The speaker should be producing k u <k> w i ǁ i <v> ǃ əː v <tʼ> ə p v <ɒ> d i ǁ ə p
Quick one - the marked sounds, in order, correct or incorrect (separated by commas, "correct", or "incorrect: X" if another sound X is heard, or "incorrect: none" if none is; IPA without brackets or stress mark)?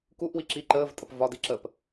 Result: incorrect: ʔ, incorrect: none, correct, correct